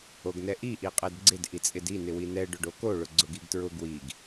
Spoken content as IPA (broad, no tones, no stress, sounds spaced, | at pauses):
o ɡ n ɛ ʔ i ʔ i qʼ ɛ d ɡ͡ǀ ɪ d ʔ i t͡sʼ ɪ d i n ɪ w i n ɛ ɖ ʊ ɖ o k o ɭ ʊ ɡ͡ǀ ʊ ɡ i ɡ t ɹ ʊ ɡ w i ɡ